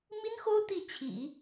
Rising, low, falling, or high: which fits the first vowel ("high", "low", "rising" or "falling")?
high